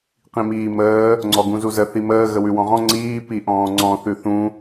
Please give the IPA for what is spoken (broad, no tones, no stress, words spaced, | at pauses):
qĩmiːməː | ŋ͡ǀɔɡũzuzə θiməː ɣəwʉwɔ̃ʁɔ̃ ŋ͡ǀiː piʔɔ̃ːŋ͡ǀɔ̃ θʉθũ